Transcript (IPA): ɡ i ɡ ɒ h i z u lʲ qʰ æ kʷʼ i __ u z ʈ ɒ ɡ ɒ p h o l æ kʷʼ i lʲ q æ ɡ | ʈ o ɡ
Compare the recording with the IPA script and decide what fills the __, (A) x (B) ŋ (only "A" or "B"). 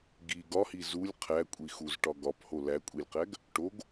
A